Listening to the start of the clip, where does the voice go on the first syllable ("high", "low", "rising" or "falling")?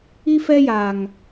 high